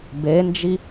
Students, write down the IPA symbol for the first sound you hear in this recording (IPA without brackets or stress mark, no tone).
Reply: b